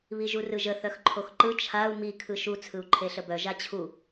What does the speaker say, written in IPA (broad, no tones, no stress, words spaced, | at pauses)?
βiʒurɯʒə θœxǃʰoxǃɯ t͡ʃʰau̯ mi kʰɯʃu t͡sʰɯu̯ǃʰeɬəbœ ʒat͡ɕʰu